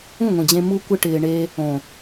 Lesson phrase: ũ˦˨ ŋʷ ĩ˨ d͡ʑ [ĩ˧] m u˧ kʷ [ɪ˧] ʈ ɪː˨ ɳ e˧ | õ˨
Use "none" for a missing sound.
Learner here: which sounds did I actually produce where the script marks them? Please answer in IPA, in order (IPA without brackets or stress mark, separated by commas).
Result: ẽ˧, ɪ˧